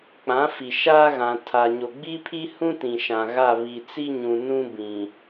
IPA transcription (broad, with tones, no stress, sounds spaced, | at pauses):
k͡p ã˨˦ f i˨ ʃ a˦ ɣ ã˨ tʰ a˨ ɲ o˨ ɡ͡b i˦ pʰ i˦ h ũ˦ t ĩ˨ ʃ ã˨ ɣ a˦˨ β i˨ t͡s i˦ ɲ ũ˨ n ũ˦ b ĩ˨